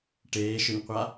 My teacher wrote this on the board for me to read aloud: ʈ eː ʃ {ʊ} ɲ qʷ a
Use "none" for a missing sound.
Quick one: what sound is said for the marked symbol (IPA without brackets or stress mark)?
ʊ